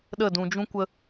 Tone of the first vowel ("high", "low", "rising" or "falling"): falling